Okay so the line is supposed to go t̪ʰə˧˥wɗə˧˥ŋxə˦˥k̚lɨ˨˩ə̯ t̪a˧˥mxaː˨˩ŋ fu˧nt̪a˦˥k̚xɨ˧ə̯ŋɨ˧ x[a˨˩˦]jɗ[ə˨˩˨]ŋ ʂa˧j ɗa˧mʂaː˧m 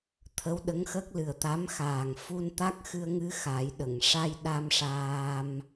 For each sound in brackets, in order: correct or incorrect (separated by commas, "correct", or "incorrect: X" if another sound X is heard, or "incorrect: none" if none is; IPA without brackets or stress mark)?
correct, correct